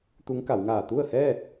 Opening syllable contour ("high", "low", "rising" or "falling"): rising